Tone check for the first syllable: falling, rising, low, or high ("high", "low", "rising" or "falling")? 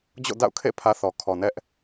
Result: falling